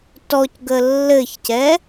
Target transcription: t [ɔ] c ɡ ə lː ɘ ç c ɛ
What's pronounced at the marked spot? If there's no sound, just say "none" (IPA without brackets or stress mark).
ɔ